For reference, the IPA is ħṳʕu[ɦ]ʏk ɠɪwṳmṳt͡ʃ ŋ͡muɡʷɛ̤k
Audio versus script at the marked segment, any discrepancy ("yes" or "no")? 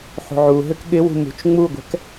no